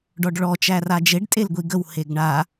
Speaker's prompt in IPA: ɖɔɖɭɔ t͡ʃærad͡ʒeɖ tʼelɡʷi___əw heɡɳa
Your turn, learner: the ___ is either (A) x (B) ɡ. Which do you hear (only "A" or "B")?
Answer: B